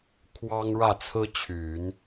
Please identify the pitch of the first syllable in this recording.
high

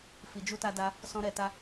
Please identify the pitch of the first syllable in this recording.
low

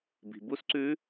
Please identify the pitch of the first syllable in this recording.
low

